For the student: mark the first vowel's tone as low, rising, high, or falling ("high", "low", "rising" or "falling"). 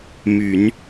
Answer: low